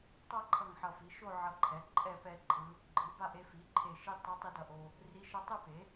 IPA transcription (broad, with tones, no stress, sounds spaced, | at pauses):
tˤ a˥˧ ǃʰ ʌ˧˩ ŋ ħ ʌ˧˩ f i˩˥ ʃ o˥˧ ʕ ʌ˧ ǃʰ ɛ˩˥ ǃʼ ɛ˥˧ p ɛ˥˧ ǃʼ ɯ˧˥ | ɡ͡ǃ ɯ˩˥ b a˧ ʔ e˧ f i˩˥ ǃʰ e˧˩ ʃ i˥˧ tˤ ʌ˧˥ tˤ i˧ d ʌ˧˩ ʔ o˧ | r i˧˥ ʃ ʌ˧˥ tˤ e˥˧ p e˩˥